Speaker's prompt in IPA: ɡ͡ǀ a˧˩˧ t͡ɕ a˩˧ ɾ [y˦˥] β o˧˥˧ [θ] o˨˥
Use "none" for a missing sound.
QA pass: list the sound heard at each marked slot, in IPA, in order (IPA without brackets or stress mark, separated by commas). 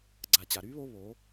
y˦˥, β